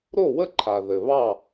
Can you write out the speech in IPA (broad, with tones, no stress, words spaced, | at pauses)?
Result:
ɾo˥˨wə˥˨ǃʰa˨ ðɘ˨βɑ˥˨